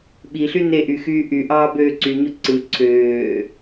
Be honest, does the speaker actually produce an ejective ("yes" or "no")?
no